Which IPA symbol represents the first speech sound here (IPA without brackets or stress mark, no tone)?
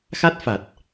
x